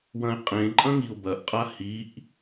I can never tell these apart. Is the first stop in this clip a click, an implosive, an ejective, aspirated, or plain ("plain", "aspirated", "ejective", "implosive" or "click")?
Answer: ejective